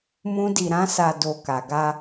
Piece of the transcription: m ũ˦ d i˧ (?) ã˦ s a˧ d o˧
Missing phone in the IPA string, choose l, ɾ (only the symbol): ɾ